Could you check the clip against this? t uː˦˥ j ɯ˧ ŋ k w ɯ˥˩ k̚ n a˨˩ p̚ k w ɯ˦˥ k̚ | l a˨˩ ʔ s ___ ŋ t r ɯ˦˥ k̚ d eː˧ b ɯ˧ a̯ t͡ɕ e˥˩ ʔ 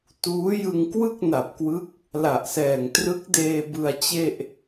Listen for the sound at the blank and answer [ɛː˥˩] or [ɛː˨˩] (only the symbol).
ɛː˨˩